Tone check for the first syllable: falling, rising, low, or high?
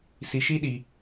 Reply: low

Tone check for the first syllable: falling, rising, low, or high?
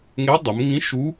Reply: rising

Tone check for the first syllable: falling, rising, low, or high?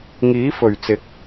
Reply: rising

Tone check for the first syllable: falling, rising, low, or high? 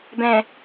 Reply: low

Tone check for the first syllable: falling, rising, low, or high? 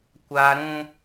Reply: high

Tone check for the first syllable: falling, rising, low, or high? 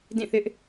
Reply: falling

